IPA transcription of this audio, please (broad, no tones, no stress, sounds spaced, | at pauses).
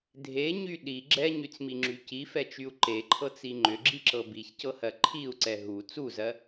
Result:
dʱ e ɲ y ɗ i ɡ͡ǁ ɛ ɲ y t͡s m i ŋ͡ǁ y c i f ɛ t͡ʃ y u̯ ǃ e ǃʰ ɤ t͡s i ŋ͡ǃ ʏ ɡ͡ǁ i ǁ ɤ b i ç c ɤ h ɜ ǃʰ i u̯ ǀ ɛ ɦ u t͡s u z ɜ